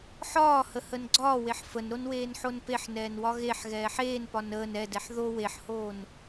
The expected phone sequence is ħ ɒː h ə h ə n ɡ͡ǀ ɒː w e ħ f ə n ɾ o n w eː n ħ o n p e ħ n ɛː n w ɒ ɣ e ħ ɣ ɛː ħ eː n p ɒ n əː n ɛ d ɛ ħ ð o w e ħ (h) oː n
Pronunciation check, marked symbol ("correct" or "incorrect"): correct